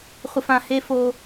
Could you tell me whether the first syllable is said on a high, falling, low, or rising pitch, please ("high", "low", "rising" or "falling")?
low